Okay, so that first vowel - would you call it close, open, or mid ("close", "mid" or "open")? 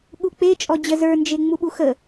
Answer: close